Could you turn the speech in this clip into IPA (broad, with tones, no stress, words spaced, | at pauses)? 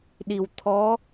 ɗi˨˩wt̪ʰɔ˧˥